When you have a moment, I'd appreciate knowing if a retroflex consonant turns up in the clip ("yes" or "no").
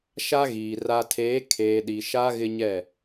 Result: no